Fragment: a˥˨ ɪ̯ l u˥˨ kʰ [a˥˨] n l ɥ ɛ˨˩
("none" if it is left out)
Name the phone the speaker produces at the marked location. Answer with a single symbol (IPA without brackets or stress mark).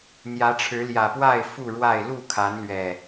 a˨˦